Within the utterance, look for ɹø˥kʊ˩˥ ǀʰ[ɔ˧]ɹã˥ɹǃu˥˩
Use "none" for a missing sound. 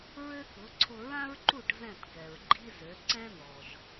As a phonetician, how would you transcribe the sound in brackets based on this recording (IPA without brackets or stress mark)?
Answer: ʊ˧